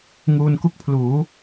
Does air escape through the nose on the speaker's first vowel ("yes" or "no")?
no